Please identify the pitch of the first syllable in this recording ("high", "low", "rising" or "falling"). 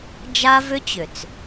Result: high